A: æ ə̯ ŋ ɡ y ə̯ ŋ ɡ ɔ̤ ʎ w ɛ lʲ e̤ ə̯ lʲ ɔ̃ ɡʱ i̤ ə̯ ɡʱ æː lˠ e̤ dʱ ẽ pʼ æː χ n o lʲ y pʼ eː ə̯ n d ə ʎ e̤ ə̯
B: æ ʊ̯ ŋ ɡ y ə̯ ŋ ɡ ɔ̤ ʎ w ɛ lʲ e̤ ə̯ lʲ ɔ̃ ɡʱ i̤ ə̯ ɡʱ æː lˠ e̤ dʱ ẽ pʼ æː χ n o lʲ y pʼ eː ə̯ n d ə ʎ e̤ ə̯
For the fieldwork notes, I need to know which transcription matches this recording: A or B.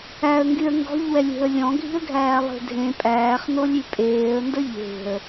A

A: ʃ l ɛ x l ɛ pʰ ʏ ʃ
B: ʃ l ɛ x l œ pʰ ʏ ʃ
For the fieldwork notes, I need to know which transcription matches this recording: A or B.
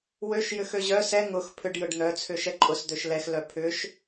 B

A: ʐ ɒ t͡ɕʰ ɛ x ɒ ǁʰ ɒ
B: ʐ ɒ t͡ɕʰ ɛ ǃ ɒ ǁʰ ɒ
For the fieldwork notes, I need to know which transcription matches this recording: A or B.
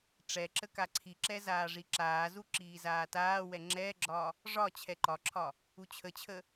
B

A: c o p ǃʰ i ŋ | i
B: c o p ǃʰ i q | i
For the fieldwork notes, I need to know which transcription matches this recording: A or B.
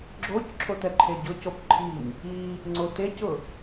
A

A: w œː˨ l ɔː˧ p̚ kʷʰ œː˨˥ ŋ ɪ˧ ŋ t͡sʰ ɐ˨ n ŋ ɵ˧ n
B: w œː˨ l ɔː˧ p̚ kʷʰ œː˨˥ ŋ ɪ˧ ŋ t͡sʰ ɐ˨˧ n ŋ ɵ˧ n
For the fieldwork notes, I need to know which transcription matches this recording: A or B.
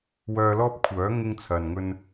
A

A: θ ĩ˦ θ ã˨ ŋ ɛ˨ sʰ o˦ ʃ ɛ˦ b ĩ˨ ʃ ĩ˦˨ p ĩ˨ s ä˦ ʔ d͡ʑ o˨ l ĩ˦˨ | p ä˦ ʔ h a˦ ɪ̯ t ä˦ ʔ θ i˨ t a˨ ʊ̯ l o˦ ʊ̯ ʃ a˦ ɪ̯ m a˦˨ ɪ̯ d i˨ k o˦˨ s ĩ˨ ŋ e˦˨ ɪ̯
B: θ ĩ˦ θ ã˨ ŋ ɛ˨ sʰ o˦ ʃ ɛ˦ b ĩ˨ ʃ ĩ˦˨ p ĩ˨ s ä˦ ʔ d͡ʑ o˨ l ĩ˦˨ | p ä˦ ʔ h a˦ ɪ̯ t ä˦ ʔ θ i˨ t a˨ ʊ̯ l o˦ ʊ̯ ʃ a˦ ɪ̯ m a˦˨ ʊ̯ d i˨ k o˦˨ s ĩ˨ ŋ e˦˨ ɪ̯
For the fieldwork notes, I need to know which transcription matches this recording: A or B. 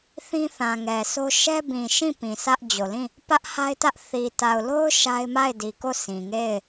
A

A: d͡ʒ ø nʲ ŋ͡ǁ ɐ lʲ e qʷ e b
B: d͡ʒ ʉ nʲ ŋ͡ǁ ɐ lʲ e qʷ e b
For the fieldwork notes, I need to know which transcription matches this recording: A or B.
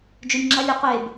B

